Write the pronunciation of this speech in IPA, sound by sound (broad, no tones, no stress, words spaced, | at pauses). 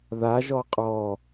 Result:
ðaʒɔ qʼɔ